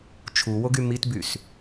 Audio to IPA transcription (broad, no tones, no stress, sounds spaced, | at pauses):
t͡ʃʰ u w o ɡ y m i t b y s